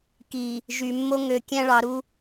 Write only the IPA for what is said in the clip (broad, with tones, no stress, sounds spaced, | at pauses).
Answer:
k i˨ | ʒ y˨ mː o˦ ŋ ø˨ kʲ æ̃˦ ɭ ɑ˨˦ ɾ u˦